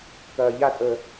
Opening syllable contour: low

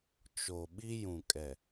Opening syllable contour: low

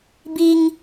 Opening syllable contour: high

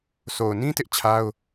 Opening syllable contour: low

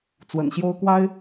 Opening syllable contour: low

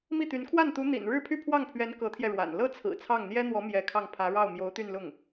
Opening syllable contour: falling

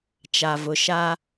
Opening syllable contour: low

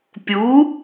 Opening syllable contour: rising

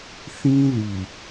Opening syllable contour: high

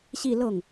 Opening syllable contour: falling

